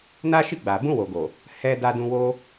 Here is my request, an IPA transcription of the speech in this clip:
n a˦ ʃ i˦˨ ɡ͡b a˨ b ũ˧ w o˨ ɡ o˨ | h ɛ˧ d a˧ d ũ˧ w o˦

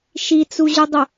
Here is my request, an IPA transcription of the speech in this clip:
ʃ i t͡s u ʑ u dˤ ʊ

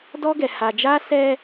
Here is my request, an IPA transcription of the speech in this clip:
d ɔ˦ ɡ ɛ˨ h a˨ d͡ʒ a˦ s ɛ˦

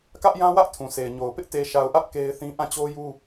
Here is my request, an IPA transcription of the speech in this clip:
k ä˦ ʔ j ã˦ w ä˦ ʔ tʰ ũ˨ sʰ e˨ ɪ̯ ɲ o˨ ʊ̯ p ɪ˦ ʔ t e˨ ʃ a˨ ʊ̯ ʔ ä˦ ʔ k e˦ ɪ̯ θ ĩ˦ ʔ ã˦˨ t͡ɕ o˦ j u˦

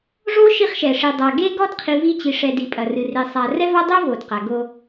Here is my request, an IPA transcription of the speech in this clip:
ʐ o˦ ʃ i˦ χ ʃ ɛ˨ ʂ i˨ dˤ a˨ ɡ e˦ ɡ ɔ˦ d qʰ i˨ v i˦ t͡ɕ i˨ ʂ ɛ˨ d i˨ pʼ ɐ˨ r ɨ˨ r e˨ sˤ a˨ r ɛ˦ v a˦ dˤ o˦ v o˨ d q a˨ ɡ o˦

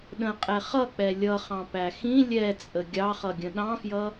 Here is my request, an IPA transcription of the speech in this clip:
ɗ ə̃ qʼ ɛ χ ʌ k͡p ɛ lʲ ʌ χ ɑ̃ p æ x ĩ lʲ ɛ t͡sʼ ə ɡʲ ɑ χ ʌ ɡʲ ə̃ ɗ ɑ̃ f j ʌ

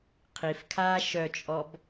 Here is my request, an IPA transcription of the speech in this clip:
qʰ i f kʰ aː ʃ œ t͡ʃʼ ɔ b

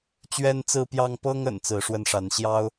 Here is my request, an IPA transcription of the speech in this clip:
t͡ɕ ɥ ɛ˦ n t͡s ɹ̩˦ p j ɑ˦ ŋ p ɤ˦ ŋ ə̰˨˩ n t͡s ɹ̩˨˦ ʂ w ə˥˨ n ʂ a˨˦ n ɕ j ɑ˦ ʊ̯

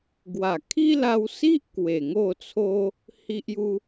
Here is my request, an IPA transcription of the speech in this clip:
ɡ w a˨˩ kʰ i˦ l a˧ w s i˦ ʔ k w e˨˩ ŋ o˥˧ t͡sʰ o˦ | h i˦ ʔ j u˦

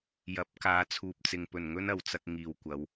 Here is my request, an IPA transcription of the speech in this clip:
j ɐ˨˥ p̚ k aː˨˧ t͡sʰ uː˨ p̚ t͡s ɪ˨ ŋ p ɵ˨˩ n ŋ ɵ˥ n ɐ˨˧ w t͡s ɐ˥ k̚ ŋ iː˨˩ w kʷ ɐ˨˧ w

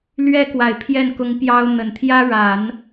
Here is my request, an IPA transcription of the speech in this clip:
l ɥ ɛ˥ k w a˨˩ ɪ̯ pʰ j ɛ˥˩ n k ʊ˧˥ ŋ p j ɑ˥ ʊ̯ n̪ ə˨˩ n t̪ʰ j ä˥ ɻ a˨˩˦ n

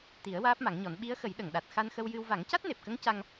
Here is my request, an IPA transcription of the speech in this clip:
t̪ i˨˩˦ ə̯ w aː˦˥ p̚ m a˨˩˦ ŋ ɲ ɔ˨˩˦ n ɓ i˧˥ ə̯ x ə˨˩˦ j ɗ ə˨˩˨ ŋ ɗ a˨˩ t̚ x a˧ n x ə˧ w j ɨ˧ w v a˨˩˦ ŋ c a˦˥ t̚ n e˨˩ p̚ k ə˧˥ ŋ c a˧ ŋ

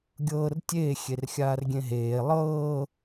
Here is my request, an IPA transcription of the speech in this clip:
ɡʲ ɤː r tʲ eː xʲ e r xʲ aː r ɡʲ ẽ ɦ eː lˠ ɤː

